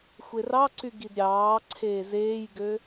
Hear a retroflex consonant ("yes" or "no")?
no